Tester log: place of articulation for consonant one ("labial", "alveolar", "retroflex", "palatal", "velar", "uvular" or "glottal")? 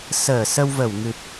alveolar